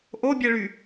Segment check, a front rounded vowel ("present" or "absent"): present